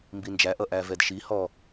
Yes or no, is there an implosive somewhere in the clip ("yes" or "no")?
no